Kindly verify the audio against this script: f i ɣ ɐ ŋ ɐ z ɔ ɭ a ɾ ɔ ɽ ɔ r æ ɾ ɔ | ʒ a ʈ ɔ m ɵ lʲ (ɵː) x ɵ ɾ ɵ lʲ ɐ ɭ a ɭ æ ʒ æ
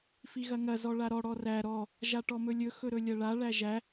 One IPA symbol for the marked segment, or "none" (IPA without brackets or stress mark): ɵ